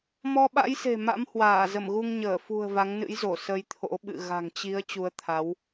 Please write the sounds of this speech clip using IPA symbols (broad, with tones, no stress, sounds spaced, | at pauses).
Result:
m ɔ˧ ɓ a̰˧˥ j s e̤˨˩ m a̰˧˥ m h w aː˧˩ z ə˧˩ m ɣ u˧ ŋ ɲ əː˧˩ f ṳ˨˩ ə̯ v a˨˦ ŋ n ɨ̰˧˥ j z o˧˩ s ə˧ j t̪ʰ o̰˧˥ ɓ ɨ̰˧˨ ɣ a̤˨˩ ŋ t͡ɕ i˨˦ ə̯ t͡ɕ u˨˦ ə̯ t̪ʰ a˨˦ w